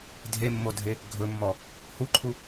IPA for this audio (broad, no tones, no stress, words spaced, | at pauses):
dʱemːodʱe | ɡʱɵmːɔ | huǃʰu